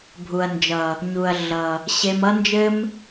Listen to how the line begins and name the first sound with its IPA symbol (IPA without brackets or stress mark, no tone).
bʱ